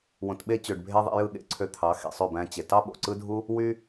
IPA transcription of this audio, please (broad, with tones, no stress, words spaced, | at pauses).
wõ˨tɓe˧t͡ɕø˨ɖ bʱe˧ ðˤḭ˧jɯ˦˨ɠḛ˦ ǀʰø˧t̪ʰɑ˨˦ xḛ˨sˤø˦˨bæ̃˧t͡ɕe˨ tɑ˦ɓo̰˨ǀɯ˦dʱu˦ | wy˧